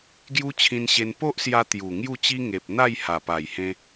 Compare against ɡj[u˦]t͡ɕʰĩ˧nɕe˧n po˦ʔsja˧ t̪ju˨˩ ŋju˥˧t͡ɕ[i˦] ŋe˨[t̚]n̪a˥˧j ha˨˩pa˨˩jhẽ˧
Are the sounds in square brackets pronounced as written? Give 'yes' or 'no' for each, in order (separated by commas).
yes, yes, no